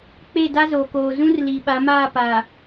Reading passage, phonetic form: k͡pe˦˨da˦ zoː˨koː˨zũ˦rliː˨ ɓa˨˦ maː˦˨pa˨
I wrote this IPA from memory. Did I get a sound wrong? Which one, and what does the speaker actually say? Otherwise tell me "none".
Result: none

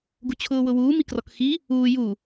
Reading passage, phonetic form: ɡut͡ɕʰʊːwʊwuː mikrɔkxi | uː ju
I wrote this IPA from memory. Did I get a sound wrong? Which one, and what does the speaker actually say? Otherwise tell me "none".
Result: none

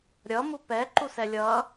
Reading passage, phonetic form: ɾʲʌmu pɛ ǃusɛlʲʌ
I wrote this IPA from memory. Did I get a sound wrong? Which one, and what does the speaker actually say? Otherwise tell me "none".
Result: none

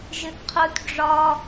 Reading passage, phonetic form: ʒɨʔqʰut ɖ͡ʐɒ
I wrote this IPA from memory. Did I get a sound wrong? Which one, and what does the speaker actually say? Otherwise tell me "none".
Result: none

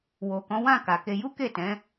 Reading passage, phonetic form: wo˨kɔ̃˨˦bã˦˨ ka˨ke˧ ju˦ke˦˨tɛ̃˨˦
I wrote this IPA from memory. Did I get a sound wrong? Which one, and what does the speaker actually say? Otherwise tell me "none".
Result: b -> w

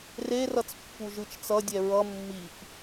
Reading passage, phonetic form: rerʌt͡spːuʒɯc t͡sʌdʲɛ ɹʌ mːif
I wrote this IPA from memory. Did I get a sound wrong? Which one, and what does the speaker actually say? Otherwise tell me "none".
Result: c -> t͡ʃ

